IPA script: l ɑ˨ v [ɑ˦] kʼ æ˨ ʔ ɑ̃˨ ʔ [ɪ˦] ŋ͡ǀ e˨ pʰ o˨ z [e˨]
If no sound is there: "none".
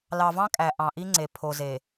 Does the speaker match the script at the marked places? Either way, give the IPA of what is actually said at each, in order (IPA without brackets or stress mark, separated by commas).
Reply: ɑ̃˦, i˦, e˨